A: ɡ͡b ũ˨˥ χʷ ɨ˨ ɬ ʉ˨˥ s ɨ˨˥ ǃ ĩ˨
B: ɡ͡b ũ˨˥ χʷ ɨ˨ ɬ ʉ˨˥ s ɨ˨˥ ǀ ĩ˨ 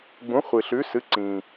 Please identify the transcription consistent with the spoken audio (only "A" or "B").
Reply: B